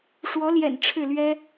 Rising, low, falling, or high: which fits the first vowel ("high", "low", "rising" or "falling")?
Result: rising